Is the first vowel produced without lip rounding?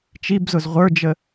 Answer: yes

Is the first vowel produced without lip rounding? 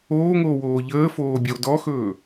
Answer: no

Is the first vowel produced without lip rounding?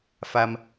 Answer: yes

